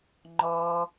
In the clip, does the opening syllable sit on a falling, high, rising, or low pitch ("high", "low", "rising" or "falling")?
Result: high